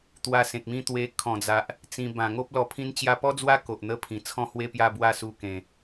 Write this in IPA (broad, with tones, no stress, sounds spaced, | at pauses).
t̪ w a˧ s ẽ˨ k̚ m ĩ˦ t̪ w e˧ kʰ ɔ̃˨˩ d͡z a˨ ʔ | t͡s ĩ˧ b ã˨˩ ŋ o˦ p̚ l ɔ˧ pʰ ĩ˧ n t͡ɕ j a˧ p ɔ˦ d͡z w a˦ k o˨ ʔ n̪ ə˦ pʰ ĩ˨˩ t͡sʰ ɔ̃˥˧ h w e˥˧ p j a˥˧ b w a˥˧ s u˧ k ẽ˨˩